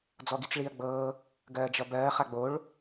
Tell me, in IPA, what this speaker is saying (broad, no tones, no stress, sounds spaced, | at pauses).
d͡z ɔ ɡ i t͡s ɭ iː ɐ̯ ɡ͡b ɤː | ɡ ɜː d͡ʒ ʌ b ɜː χ a ɡ͡b o ɭ